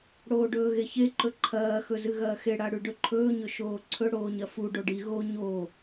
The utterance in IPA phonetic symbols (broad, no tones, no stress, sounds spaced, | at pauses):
ɽ oː ɖ ɵː ɣ e ç e ǃ ɵ ǃʰ ɐː x ɵ z ɨ ɣ ɐː x e ɽ a ɽ ʉ ɖ ɵ ǃʰ ɵː ɲ ɵ ʃ oː ǀʰ ɵ ɽ oː ɲ ɐ f u ɖ o ɖ i ɣ o ɲ oː